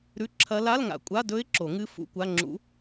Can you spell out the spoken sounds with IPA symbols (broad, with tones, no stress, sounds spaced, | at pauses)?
ɾ ʉ˧˥˧ ǁʰ ɐ˧˥ l a˧˥˧ l ŋ a̰˨ kʷʼ a˧˥˧ d ɵ˧˥ ɪ̯ ǁ o˨˩˦ ŋ ɨ˧˥ f ṵ˧˥˧ kʷ a˧˥˧ ŋ͡ǁ ṵ˧˥